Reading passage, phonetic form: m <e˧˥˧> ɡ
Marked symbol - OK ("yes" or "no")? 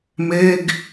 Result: yes